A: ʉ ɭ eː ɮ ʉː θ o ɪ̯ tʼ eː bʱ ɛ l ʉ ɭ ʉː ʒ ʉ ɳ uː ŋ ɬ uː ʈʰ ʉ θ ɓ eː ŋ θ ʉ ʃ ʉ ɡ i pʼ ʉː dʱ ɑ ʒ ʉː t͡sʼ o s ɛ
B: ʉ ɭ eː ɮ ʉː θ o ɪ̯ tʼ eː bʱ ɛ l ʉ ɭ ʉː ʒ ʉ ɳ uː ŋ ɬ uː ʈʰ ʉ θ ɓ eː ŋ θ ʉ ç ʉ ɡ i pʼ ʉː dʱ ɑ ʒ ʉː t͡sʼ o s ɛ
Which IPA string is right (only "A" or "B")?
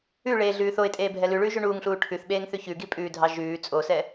B